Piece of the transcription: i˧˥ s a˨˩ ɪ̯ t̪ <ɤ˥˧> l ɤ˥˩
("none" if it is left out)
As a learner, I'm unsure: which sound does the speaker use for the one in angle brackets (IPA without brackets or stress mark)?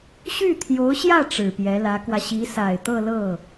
ɤ˥˧